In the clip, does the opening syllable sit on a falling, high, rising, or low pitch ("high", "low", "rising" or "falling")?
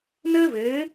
high